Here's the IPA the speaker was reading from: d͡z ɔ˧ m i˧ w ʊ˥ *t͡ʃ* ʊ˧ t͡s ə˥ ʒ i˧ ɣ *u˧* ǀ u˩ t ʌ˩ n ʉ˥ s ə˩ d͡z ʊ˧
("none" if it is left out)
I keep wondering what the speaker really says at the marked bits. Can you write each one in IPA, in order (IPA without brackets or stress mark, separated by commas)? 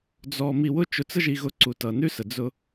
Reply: t͡ʃ, ʊ˧